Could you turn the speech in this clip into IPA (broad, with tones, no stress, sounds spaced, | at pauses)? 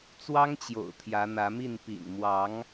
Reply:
t͡s w ɑ˦ ŋ t͡ɕ j o̰˨˩ ʊ̯ t̪ʰ j ä˨˦ n̪ ä˨˦ m i˥˨ n p ḭ˨˩ n m w ɑ˨˦ ŋ